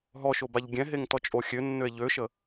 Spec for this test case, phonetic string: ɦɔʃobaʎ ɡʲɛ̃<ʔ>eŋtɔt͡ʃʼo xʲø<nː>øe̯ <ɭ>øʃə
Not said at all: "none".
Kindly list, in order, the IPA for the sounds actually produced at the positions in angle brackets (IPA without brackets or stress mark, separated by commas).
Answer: ɦ, nː, ʎ